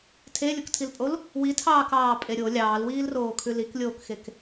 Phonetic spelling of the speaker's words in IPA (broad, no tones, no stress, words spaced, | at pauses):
tʰelʲoktʰilpʼol | witʰɑːkɑːpʼe ɾʲo lʲɑːlwiːlroːkʰʉ liklʲoːkxek